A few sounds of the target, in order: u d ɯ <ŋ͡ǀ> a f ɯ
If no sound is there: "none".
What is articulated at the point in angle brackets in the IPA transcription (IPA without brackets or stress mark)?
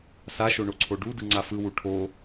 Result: ŋ͡ǀ